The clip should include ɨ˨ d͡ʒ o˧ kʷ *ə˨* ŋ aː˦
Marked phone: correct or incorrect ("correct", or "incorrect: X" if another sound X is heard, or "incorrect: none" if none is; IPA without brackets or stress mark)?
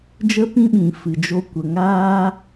correct